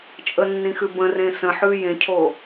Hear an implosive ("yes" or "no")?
no